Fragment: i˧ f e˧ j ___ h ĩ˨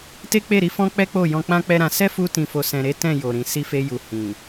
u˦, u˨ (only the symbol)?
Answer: u˨